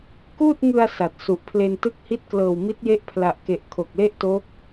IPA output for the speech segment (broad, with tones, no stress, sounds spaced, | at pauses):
k uː˥˩ t̚ ŋ ɯ˧ a̯ s a˨˩ t̚ s u˨˩ ʔ pʰ l e˧ n t ɯ˦˥ k̚ h i˦˥ t̚ k l ɤː˨˩ w m i˦˥ t̚ j e˦˥ ʔ pʰ l a˨˩ ʔ k e˨˩ ʔ kʰ o˨˩ k̚ l e˥˩ ʔ t o˦˥ k̚